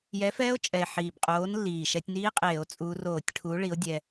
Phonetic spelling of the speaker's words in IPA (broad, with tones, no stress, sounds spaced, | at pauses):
j ɛ˨˥ f ɛː˦˥ o̯ t͡ʃʼ ɛ˨˩ e̯ ħ iː˨˩ b qʼ oː˨˥ n lː iː˨˩ ʃ ɛ˧ tʲ n iː˦˥ qʼ eː˧˩˧ o̯ t͡sʼ uː˧ r oː˧˩˧ tʲ ʈʰ uː˨˥ ɭ i˨˥ o̯ dʲ ɛ˧